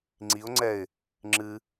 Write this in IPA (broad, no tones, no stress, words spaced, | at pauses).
ŋ͡ǀiʊ̯ŋ͡ǀɛɪ̯ | ŋ͡ǁɨ